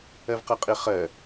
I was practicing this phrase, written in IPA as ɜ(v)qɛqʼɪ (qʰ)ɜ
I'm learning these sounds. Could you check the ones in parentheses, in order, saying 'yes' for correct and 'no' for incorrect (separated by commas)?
yes, no